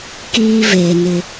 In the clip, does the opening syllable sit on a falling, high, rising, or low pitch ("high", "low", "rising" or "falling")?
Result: high